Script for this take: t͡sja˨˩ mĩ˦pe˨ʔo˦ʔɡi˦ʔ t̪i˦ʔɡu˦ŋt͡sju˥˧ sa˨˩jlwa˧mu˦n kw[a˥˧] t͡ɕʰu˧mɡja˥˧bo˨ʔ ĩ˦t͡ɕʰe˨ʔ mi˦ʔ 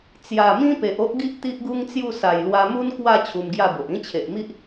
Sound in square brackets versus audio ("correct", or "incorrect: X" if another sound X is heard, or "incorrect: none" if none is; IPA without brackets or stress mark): correct